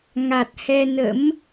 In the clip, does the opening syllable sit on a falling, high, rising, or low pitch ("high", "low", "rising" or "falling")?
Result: low